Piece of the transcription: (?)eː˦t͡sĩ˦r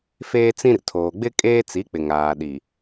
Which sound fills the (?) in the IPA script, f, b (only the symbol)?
f